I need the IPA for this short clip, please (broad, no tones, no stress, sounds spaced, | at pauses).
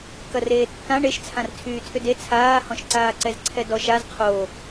k ɐ r eː tː ã ɳ e ʃ t͡sʰ ã r tʰ yː tʰ ʏ d e t͡sʰ aː h ɔ̃ ʃ ǀ aː ǀ ɛ z ǀʰ ɛ d ɔ ʃ a z qʰ o